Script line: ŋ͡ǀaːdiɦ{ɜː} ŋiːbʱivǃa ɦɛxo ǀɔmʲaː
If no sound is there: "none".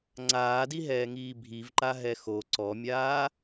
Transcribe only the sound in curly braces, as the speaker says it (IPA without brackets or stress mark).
ɛː